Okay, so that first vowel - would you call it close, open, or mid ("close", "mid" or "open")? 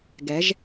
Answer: mid